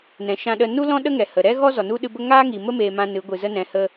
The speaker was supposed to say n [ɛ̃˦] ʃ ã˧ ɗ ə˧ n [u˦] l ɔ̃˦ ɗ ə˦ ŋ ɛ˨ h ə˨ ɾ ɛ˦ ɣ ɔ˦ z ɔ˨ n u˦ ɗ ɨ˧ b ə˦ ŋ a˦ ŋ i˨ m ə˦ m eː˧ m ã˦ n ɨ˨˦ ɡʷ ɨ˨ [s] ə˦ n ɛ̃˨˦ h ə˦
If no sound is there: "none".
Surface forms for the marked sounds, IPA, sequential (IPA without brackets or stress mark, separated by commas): ɛ̃˨, u˦, z